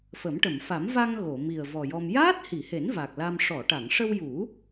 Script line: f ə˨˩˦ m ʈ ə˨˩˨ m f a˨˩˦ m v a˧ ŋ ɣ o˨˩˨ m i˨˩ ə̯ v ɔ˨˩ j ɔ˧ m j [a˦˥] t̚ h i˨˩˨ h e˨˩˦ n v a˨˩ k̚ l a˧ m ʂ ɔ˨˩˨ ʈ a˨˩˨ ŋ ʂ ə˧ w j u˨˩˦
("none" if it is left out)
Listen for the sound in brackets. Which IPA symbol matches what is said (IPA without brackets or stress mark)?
aː˦˥